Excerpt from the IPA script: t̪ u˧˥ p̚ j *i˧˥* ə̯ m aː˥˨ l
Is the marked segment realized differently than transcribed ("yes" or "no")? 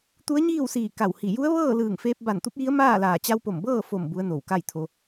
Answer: no